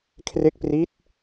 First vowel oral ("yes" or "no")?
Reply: yes